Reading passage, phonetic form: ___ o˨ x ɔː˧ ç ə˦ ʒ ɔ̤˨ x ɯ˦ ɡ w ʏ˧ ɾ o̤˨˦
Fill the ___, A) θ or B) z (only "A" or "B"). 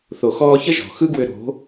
A